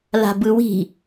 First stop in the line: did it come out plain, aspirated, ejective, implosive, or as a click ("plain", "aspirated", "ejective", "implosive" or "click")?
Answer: plain